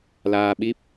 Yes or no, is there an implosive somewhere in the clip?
yes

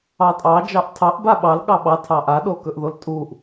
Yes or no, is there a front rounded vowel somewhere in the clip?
no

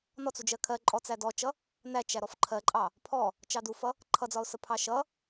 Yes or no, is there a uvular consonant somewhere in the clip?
no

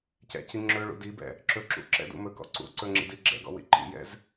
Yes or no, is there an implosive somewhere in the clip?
no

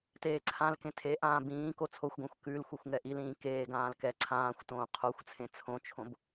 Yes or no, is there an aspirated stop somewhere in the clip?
yes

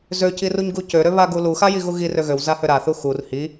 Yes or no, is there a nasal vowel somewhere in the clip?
no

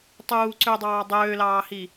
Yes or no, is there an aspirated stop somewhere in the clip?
no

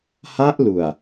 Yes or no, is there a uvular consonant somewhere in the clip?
no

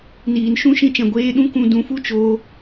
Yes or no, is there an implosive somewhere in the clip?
yes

